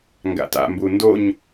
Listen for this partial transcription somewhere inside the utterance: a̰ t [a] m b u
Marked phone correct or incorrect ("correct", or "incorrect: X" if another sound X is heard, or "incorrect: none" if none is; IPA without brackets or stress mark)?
incorrect: a̰